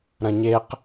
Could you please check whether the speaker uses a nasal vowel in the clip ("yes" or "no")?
yes